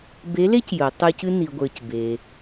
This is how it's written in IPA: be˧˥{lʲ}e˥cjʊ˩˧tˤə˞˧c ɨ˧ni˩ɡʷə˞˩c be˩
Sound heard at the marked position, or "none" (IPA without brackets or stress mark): l